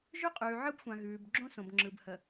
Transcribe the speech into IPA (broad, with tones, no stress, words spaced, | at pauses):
ʒʉ˦qʼʉː˨ʕɯ˦bxʷã˨ ɣʉː˨b ɡ͡ǁõ˦sõ˨b ŋ͡ǁɯ˨bhə˨